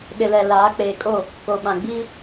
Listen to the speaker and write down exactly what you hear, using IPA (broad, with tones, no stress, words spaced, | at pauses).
ɗɪ˨lɛ˨ laː˨˦ k͡peː˨kʼo˦˨ | ko˨ɓã˨ ɡ͡biː˦